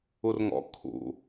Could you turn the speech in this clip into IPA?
u r ŋ ɔ̰ kʰ ṵ

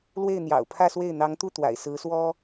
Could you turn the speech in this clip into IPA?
l w e˥˩ ɪ̯ n̪ j ɑ̰˨˩ ʊ̯ pʰ ä˥˧ s w e˥˩ ɪ̯ n̪ ɑ˧˥ ŋ t̪ u˥˩ t̪ w a̰˨˩ ɪ̯ s ɹ̩˧˥ s w ɔ˥

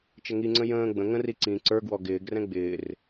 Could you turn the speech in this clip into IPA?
t͡ʃ ə ŋ i ŋ͡ǀ ə̃ j ə̃ː ɡ͡b ə̃ ŋ ə̃ r i ǀ ĩ ǀ ə˞ ɡ w ɔ ɡ ɪː ɡ r ɛ̃ ɡ͡b ɪː r

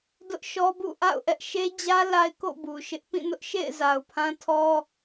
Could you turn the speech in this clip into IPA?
d ʊ˦ ʔ ʃ ɔ˦ b ṵ˦˨ ʔ a̰˦˨ ʊ̯ ʔ ɛ˦ ʔ ʃ e˦ d͡ʑ ä˦ l a˦ ɪ̯ k o̰˦˨ b u˨ ʃ ɪ˦ ʔ p ĩ˦˨ n ʊ˦ ʔ ʃ ḛ˦˨ ɪ̯ z a˨ ʊ̯ pʰ ã˦ tʰ ɔ˦

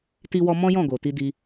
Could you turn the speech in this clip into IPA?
t i˧ w ɔ˧ m ɔ̃˦ j ɔ̃˦˨ ɡ o˨ t i˧ d i˧

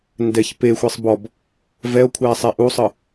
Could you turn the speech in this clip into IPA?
n d ɛ ç p e xʷ e sˤ b ɔ b | v ɛ o̯ kʷʰ ɛː sˤ e ʔ u sˤ ɯ

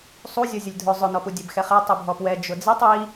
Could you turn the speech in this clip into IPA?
sˤ u zʲ ɔ zʲ ʊ lʲ dʱ ʊ zˤ ʊ n ɔ p u dʲ ɛ b x ɛ χ e tˤ u bʱ ɔ p w ɛ d͡ʒ ʊ d͡z i tˤ i

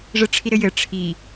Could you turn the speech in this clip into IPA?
ʐ ɘ ʈ͡ʂʰ i ɾ ɘ j ɘ ʈ͡ʂʰ i

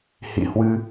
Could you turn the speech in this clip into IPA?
h ḭ˧˨ h w ɨ˧

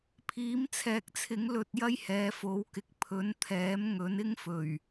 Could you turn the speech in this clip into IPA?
pʰ iː˨˥ m t͡sʰ ɛː˨ k̚ t͡sʰ ɪ˨˥ ŋ l ɵ˧ t̚ j ɐ˥ j h ɛː˨˧ f o˨˧ w k ɪ˨ k̚ pʰ ɵ˨˥ n t̪ʰ ɛː˨˥ m ŋ ɵ˨˥ n ɪ˥ ŋ f ɵ˨˩ ɥ

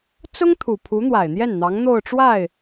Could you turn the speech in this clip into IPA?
t͡s ʊ˥ ŋ t̪ʰ u˨˩ pʰ u˧˥ n̪ w a˨˩ ɪ̯ n̪ j ɛ˥˩ n n̪ ɑ˧˥ ŋ n̪ o˥˧ ʊ̯ ʈ͡ʂ w a˥˩ ɪ̯

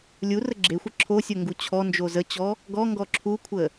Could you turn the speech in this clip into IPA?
lʲ u r ə ɡ͡ǁ e xʷ ə ǁʰ o sʲ o ŋ ɡ u t͡ɕʰ ɔ n d͡ʒ o z ə t͡ɕ ɔ | ɡ ɔ ŋ ɡ ɔ ǁʰ u kʷʰ ə

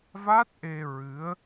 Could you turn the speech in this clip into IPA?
v a˦˥ t̚ ʔ e˧ ɹ ɨ˧˥ ə̯

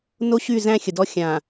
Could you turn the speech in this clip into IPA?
n o˦ ɕ y˦˨ z æ̃˦ xʲ ə˨ d ɔ˦ xʲ ã˨

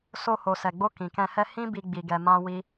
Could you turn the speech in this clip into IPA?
s o˧ h o˨ s ɛ˨ ɡ͡b o˧ k ĩ˨ k ɛ̃˧ h ɛ˦ h ĩ˦ b i˧ ɡ͡b i˧ ɡ ɛ˧ m ã˦ w i˦

